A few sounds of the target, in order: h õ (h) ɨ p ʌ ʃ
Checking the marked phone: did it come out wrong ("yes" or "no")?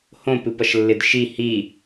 yes